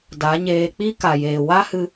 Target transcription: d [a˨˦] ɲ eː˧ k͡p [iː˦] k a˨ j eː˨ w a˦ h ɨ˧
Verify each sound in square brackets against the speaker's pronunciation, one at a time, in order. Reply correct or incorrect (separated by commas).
correct, incorrect